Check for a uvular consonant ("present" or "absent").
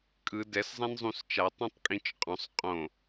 present